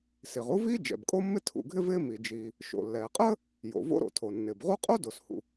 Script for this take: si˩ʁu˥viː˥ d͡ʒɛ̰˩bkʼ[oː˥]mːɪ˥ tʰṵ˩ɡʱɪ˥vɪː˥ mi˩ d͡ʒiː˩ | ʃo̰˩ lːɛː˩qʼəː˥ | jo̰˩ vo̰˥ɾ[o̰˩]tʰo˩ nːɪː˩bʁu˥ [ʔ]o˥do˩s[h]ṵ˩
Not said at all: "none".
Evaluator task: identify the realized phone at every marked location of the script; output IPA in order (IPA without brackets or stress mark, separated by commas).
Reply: o˥, o̰˩, qʼ, h